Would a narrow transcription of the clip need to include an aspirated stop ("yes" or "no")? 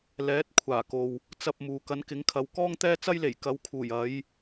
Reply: yes